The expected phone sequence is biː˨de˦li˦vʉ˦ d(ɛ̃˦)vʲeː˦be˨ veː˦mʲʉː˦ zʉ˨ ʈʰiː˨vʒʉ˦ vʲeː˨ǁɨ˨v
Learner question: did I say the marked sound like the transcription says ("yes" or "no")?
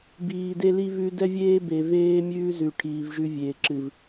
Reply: no